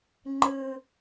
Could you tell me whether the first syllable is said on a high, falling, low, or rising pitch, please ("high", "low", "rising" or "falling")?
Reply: high